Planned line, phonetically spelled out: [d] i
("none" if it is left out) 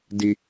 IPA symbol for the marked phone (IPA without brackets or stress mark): d